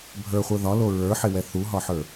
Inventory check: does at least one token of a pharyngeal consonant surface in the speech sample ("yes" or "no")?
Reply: yes